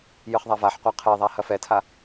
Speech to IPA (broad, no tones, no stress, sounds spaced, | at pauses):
j ɨ χ ðˤ a v a ħ qʷ a qʰ e ðˤ a h ɐ f ɛ tʰ a